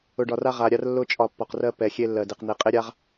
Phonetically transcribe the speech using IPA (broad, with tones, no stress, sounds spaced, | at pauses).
ʊ˧ ɖ ɒ˧ r a˦ ʁ a˧ ɾʲ a˦ r lː ʊ˦ t͡ʃʼ ɒ˧ pː ɒ˧ q r ɜ˦ p ɛ˧ xʲ e˦ lː ɜ˧ d e˧ q n̪ e˧ qʼ e˦ ɾʲ a˦ ʁ